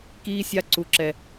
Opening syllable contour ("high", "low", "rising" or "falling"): high